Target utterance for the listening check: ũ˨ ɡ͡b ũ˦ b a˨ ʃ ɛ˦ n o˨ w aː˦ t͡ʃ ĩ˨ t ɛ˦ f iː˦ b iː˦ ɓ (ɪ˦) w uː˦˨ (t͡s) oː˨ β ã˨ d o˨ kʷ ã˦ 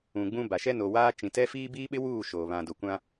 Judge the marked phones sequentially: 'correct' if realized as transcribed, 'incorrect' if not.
correct, incorrect

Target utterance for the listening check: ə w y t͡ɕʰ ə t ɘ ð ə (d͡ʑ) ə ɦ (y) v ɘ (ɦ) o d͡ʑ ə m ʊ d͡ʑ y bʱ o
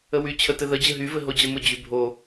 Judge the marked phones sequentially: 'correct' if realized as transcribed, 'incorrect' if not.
correct, correct, correct

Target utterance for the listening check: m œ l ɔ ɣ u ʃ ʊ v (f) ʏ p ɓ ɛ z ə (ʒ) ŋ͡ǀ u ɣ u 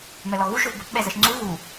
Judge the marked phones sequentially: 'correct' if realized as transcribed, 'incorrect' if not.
incorrect, incorrect

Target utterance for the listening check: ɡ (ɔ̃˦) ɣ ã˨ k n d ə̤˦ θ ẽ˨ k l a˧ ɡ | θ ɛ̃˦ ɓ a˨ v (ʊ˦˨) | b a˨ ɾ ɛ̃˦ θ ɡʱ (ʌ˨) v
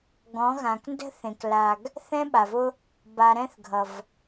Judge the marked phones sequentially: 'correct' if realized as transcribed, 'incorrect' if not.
incorrect, incorrect, correct

